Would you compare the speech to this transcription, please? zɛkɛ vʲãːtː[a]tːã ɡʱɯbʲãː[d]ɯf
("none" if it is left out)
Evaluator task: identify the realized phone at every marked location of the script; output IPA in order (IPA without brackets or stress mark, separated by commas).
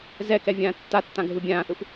a, θ